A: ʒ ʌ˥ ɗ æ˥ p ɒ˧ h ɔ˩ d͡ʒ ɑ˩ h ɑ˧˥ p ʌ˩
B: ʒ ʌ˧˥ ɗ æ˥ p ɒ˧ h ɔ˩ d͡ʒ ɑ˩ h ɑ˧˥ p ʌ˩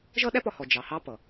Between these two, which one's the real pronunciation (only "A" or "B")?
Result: A